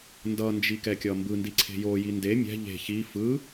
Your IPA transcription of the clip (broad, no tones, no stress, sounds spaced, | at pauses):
n d ʌ n d͡ʒ i k ɛ kʲ ʌ m b ɯ n d i ǀʰ e̤ j o j i n d e mʲ ɛ̤ ʎ e̤ ç i f ɯ